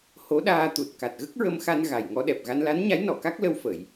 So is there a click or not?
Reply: no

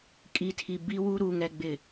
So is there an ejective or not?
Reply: yes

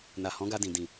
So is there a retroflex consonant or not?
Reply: no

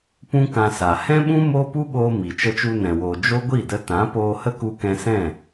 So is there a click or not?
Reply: no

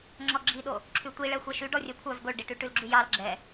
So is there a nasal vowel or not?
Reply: no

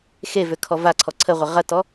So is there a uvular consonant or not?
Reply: yes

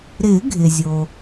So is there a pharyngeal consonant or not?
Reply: no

